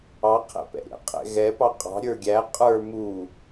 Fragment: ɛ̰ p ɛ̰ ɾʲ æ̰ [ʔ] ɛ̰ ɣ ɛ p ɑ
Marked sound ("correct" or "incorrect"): incorrect